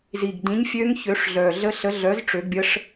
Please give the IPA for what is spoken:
z i˨˩ ɡ d ĩ˨˥ ɲ fʲ ø˦˥ ŋ ç ø˨˥ ʂ ɮ œ˨˩ ɮ ə˦˥ ɬ ə˨˥ ɮ œ˨˥ z ʈ͡ʂ ø˨˥ ɡ bʲ ə˦˥ ʂ

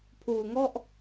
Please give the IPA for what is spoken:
pʰ uː˧ ŋ ɔ˥˩ ʔ

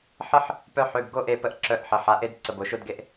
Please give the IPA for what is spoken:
ħ ə˦ ħ | p œ˦ ħ ø˩˧˩ b ɡ o˦ ʔ e˧˩ p ə˧˩ ʔ ǁ œ˧˩ ʔ ħ ə˩˧ ħ a˩˧˩ ʔ e˦ d ǀ ə˩˧˩ b o˩˧ ʃ o˦ d ɡ e˦ ʔ

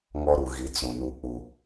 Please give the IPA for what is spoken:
ŋ ɔ˦ ɾ u˨ ɣ i˨˦ t͡s ũ˨ n u˦ k͡p u˦

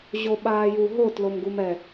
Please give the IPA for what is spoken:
ʑ o ɓ aː j u ɦ o t l o m ɡ u m ɛ

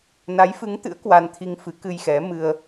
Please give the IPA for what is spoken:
n a˨˦ j f ɨ˨˦ ŋ t̪ ɨ̰˧˥ ə̯ k w a˧ n t̪ʰ i˧ ŋ f ɨ˨˦ k ɨ˧ j x ɛ˨˦ m ɨ˧ ə̯

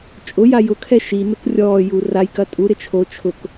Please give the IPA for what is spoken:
t͡ʃʼ ʊ j a j ʊ kʰ ɛ ʃ i n ʊ k rʲ ɔː j u r a j k ɐ tʼ u ɾ ɪ t͡ʃʰ o t͡ʃʰ ʊ k

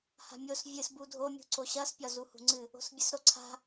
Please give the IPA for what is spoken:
h a̤ mʲ o s vʲ ɨ s b u dʱ o mʲ ṳ ǀ o ɕ ɐ s pʲ ɒ z u h ṳ ŋ͡ǀ ɨ | o̤ s bʲ ɨ s ɾ o ǀʰ a̤

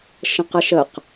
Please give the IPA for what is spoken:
ʃ ə̃ q ə ʃ ə q

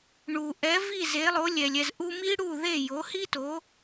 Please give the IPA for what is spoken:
ɳ u˩ ʔ ɛ˩˥ v i˥˩ z e˩˥ lˠ o˩˥ lʲ ɛ˩ lʲ ɛ˥˩ z ʔ u˧ m i˥ ɽ u˥˩ ð e˥˩ j o˩˥ h i˥ t o˩˥

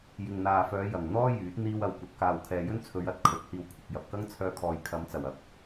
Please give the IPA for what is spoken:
j ɪ˨ ŋ n̪ aː˨ f œː˨˧ j ɐ˨˩ ŋ n̪ ɔː˥ j yː˨˥ t̚ n̪ iː˧ w ɐ˨ w kʷ ɐ˨ t̚ k aː˨ w kʰ ɛː˨ j ɵ˥ n t͡sʰ ɵ˨˧ ɥ ɐ˧ t̚ kʰ ɵ˨˥ t̚ h iː˧ w kʷʰ ɪ˨ k̚ j ɐ˨ p̚ k ɐ˥ ŋ t͡sʰ œː˧ kʰ ɔː˨ j kʰ ɐ˨˧ m t͡s ɐ˨˩ w ɐ˨ p̚

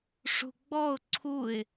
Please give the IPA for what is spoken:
ʂ ṳ ɡ͡b ɔ ʊ̯ ǀʰ u ɪ̯

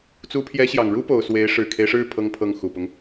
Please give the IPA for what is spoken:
t͡s u˧˥ pʰ j ɛ˧˥ ɕ j ɑ˨˩ ŋ ɻ u˥ p o˨˩ ʊ̯ s w e˧˥ ɪ̯ ʂ ɻ̩˨˩ kʰ e˦ ɪ̯ ʂ ɻ̩˥˩ pʰ ɤ˥ ŋ pʰ ɤ˥˩ ŋ x u˨˩ p ʊ˦ ŋ

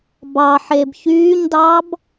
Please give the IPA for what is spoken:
b ɑ ħ e b ç yː ɲ d ɑ b

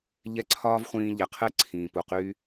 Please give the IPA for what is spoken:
ʎ ɛ˥˩ ǀʰ ɒː˥ v χʷ ĩː˧ ʎ ɛ˩ qʰ ɛ˥ ǀʰ ĩː˩ p u˩ q yː˧

